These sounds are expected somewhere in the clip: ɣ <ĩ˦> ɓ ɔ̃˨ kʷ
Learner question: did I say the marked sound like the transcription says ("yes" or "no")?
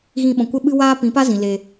no